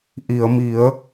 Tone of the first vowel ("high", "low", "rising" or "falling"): low